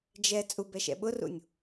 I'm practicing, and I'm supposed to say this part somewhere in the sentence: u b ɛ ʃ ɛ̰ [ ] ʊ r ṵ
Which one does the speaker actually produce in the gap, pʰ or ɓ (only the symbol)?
ɓ